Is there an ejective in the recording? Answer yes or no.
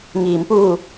no